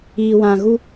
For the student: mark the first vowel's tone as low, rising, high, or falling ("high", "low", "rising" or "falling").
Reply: low